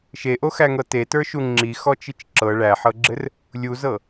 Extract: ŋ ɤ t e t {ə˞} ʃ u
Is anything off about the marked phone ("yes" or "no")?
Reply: no